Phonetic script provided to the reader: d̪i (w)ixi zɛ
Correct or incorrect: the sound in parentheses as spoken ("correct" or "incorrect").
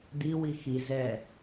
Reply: correct